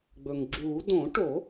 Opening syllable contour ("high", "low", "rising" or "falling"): low